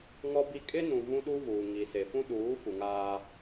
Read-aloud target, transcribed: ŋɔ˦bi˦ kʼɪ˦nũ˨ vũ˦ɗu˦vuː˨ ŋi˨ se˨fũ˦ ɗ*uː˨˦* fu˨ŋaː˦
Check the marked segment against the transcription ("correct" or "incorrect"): correct